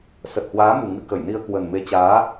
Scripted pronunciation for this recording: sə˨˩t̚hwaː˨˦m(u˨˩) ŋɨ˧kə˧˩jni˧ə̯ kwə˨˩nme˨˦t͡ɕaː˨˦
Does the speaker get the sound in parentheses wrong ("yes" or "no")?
no